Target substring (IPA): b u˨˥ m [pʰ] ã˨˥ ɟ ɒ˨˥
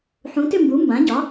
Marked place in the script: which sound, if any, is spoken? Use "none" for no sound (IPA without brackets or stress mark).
b